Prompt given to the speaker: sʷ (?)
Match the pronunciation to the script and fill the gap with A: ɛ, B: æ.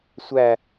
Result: B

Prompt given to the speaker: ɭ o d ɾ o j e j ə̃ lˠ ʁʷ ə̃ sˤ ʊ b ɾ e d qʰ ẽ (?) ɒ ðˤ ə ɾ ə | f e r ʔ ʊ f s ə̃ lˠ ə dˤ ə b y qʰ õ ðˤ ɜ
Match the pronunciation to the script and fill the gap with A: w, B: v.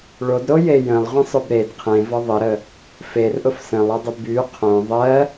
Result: B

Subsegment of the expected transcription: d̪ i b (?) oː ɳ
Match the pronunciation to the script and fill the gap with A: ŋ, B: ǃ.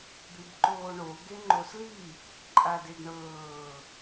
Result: B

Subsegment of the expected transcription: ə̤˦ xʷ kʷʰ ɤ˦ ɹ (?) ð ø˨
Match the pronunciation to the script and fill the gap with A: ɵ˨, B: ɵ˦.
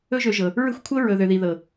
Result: A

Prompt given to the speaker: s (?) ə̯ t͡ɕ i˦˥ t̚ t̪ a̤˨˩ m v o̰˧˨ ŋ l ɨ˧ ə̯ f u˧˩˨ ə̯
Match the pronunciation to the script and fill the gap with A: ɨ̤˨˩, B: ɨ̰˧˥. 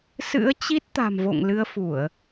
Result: B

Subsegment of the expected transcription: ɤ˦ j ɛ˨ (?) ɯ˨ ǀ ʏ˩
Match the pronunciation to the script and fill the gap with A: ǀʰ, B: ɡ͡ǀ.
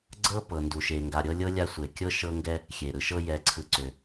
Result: A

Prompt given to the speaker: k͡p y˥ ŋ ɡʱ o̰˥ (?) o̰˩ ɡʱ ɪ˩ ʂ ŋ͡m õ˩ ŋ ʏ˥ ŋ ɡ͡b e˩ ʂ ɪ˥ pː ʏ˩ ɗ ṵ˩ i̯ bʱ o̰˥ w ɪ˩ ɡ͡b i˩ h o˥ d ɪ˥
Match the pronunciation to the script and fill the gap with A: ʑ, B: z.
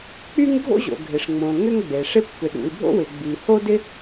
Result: A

